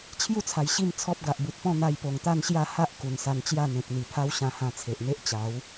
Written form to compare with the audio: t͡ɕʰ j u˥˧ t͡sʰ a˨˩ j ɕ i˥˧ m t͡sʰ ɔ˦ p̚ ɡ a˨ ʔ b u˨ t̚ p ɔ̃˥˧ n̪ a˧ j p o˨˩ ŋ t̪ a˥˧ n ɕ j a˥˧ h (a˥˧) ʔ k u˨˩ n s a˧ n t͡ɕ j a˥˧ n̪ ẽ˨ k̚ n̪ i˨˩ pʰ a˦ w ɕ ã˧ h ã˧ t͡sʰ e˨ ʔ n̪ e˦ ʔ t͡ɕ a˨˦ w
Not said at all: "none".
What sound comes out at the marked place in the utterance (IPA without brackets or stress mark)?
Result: a˦